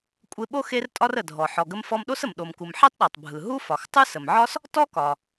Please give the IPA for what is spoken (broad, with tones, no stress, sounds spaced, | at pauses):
kʷʼ e˧ ɓ o˥ x e˥ r tʼ ɒ˥ r ə˩ dʱ ɔ˩ ħ ɔ˩ ɡ ə˧ m f ɔ˧ m ɗ o˥ s ə˩ m ɗ o˩ m k u˩ m ħ e˥ tˤ ɗ ɔ˩ tˤ bʱ ɯ˩ ɦ u˥ f ɒ˩ x tˤ ɯ˥ s ə˩ m ʕ ɒ˥ s | t ɔ˥ k ɒ˩